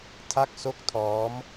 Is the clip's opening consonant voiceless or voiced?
voiceless